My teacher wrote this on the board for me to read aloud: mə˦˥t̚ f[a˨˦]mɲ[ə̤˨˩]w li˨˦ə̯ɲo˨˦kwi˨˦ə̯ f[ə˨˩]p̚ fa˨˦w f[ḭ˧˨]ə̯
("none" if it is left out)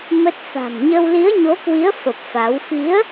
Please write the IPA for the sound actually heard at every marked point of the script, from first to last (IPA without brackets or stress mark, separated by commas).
a̤˨˩, ə˧, ə˨˩, i˨˦